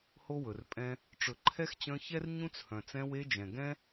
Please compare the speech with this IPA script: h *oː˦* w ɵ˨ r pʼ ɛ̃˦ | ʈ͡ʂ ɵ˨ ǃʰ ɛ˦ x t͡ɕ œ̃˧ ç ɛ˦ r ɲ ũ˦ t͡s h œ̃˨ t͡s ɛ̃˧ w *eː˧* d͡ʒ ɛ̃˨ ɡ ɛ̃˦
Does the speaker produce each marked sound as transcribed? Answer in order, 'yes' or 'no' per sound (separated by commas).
no, no